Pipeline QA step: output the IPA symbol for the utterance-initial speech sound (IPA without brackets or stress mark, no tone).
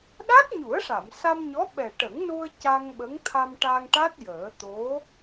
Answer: ɗ